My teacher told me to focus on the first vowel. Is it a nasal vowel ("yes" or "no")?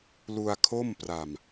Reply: no